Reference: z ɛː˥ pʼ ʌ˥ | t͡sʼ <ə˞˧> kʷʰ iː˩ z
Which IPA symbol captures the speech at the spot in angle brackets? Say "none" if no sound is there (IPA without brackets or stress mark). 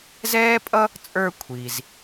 ə˞˧